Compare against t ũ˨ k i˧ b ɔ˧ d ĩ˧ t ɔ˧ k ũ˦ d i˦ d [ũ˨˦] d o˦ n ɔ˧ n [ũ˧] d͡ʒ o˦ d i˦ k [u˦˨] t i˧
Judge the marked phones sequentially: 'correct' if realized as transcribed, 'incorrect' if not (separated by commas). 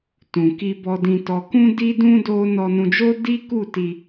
incorrect, correct, correct